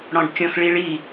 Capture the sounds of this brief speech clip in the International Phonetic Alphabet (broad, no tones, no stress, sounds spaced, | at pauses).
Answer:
ɽ ɔ̃ ɖ kʲ ɔ̃ x ɭ i ɭ i